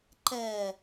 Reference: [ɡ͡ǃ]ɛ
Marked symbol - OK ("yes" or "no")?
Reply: no